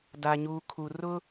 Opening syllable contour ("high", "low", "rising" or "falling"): low